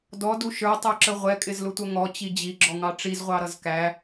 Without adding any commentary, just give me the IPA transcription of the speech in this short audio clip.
d ɔ d u ʃ ə˞ tˤ ə˞ ǁ ə ʁʷ ɛ kʼ ɪ z l ʊ tʷ ʌ ŋ ɔ t͡ɕ i d͡ʑ i ɡ͡ǁ ɔ ŋ ɑ ʈ͡ʂ i z ʁʷ ɑ ɾ ʌ z k æ

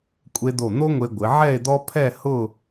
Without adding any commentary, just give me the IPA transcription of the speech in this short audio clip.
kʷʼ e˧ d̪ o˧˩ n̪ o˥ ŋʷ e˧ ɡʷ ɪ˩˧ ʕ ɛ˥˧ e̯ d̪ ɔ˥ pʰ ɛ˥˧ h ʊ˥˧

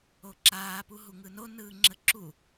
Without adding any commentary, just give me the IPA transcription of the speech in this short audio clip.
o ǁ aː p u ɦ u ŋ ɯ n o n ɯː ŋ͡ǁ ə ǁ u

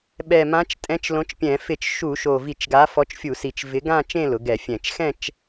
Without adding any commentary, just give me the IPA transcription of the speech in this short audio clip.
ɓ ɛ˨˩ m ã˨˥ t͡ʃ tʼ ɛ̃˨˥ t͡ʃ l õ˨˥ t͡ʃ pʲ ɛ̃˧˩˧ f ɪ˧˩˧ t͡ʃ ʃ u˧˩˧ ʃ o˨˩ v i˧˩˧ t͡ʃ ɡ a˨˥ f ɔ˨˥ t͡ʃ fʲ u˧˩˧ s i˨˩ t͡ʃ v ɪ˨˥ ɡ ã˥˧ t͡ʃ ẽ˥˧ l ʊ˩˧ ɡ ɛ˧˩˧ fʲ ɛ̃˧˩˧ t͡ʃ x ɛ̃˥˧ t͡ʃ

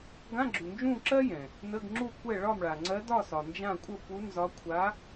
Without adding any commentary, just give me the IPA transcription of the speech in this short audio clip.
ɡ ã˧˥˧ ɡ͡ǁ u˨ n d͡ʒ ũ˥˨ ǁ ɜ˥ j ɛ̃˨ | n ə˧˥˧ ɡ ŋ͡ǁ u˥˨ kʷ ɛ˥˨ ɭ ɒ˥˨ m ɭ a˨ ŋ͡ǀ ɜ˧˥ d ɒ˥˨ s ɒ˨ n d͡ʒ ã˥˨ kʷʼ ə˥˨ p u˧˥ n z ɒ˧˥ kʷʰ a˧˥

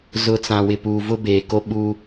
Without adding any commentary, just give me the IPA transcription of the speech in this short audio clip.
z ʊ˨ t͡s ã˨ w ɪ˨ p uː˨ v ʊ˦ b eː˨ k o˦ ɓ u˦

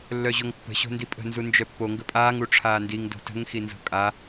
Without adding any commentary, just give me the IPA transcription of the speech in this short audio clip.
lː œ ʑ o ŋ pː ə̤ ɕ o̤ n d i pʼ ə̤ n z u n d͡ʒ œ pː o ŋ ɡ ə pʼ aː ŋ u ʈ͡ʂʰ aː n d i ŋ d o̤ t ə̤ ŋ x i n z o̤ kʼ a

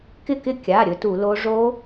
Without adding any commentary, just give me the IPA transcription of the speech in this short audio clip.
k ɪ˥˨ k ɪ˥˨ kʲ a˩˧˩ ɾʲ ɵ˦˥ t u˧˩˧ l o˦˥ ʐ o˦˥

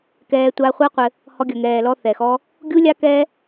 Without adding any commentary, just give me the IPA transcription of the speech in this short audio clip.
k ɛː˧ tʷ aː˧ χʷ a˦ qʷ ɘ˧ | h ɔ˧ ɡʲ ɐ˨ ŋ ɛː˨ l ɔ˧ θ ɛ˨ x ɔ˦ | ɡʲ u˦ lʲ a˦ k ɛː˦

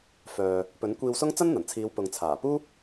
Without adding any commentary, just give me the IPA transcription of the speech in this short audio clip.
f œː˨ | p ɵ˨˥ n kʷ iː˧ w s ʊ˥ ŋ t͡s ɐ˥ n n̪ ɐ˨˩ n t͡sʰ iː˨˧ w p ʊ˨ ŋ t͡sʰ aː˨˩ p uː˥

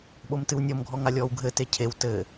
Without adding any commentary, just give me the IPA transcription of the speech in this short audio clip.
ɓ o m t ɨ w nʲ ɔ m ɡʱ ɔ ŋ a lʲ ɔː w ɡʱ ɘ t e cʰ e w t ɘː

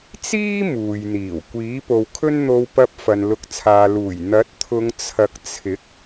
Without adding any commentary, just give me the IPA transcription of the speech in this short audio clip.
t͡s iː˥ m uː˨ j n̪ iː˨˩ w kʷ iː˨˥ p o˨ w kʰ ɵ˥ n n̪ o˧ w p ɐ˧ p̚ f ɐ˨ n l ʊ˨˥ k̚ t͡sʰ aː˨ l uː˨˩ j n̪ ɐ˨˥ t̚ t̪ʰ ʊ˨˧ ŋ t͡sʰ ɐ˨ k̚ t͡sʰ ɪ˨˥ k̚

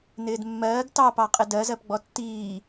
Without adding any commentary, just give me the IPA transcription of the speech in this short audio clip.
n ɪː d mː ɜː ɡ t ɑ p ɑ qʼ ɪ d ɜ z ɜ p ɡ͡b ɔ tː iː

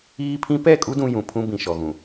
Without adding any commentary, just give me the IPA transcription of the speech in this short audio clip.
iː˦ pʰ ĩ˦ p ɛ˦˨ kʼ u˦ d ũ˦ j ũ˨ pʰ ũ˦ b ĩ˨ ʃ ɔ˨ ɣ ũ˨

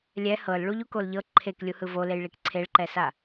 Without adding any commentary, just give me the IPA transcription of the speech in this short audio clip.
lʲ ɛ h ɤ l ɭ u ʎ u k o l ʎ ɤ ǃʰ e k lʲ u h ɯ v o l e j ɭ i k ǀʰ e ɭ ǃ ɛ s a

